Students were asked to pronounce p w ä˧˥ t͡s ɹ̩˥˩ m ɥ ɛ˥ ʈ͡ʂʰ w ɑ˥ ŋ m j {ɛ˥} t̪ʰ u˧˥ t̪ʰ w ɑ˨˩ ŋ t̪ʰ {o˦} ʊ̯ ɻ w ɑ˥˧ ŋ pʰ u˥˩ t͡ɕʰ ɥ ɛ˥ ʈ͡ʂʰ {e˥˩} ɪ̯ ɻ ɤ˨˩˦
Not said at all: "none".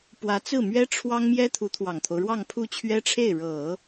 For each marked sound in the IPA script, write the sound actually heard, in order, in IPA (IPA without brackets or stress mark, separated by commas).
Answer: ɛ˥, o˦, e˥˩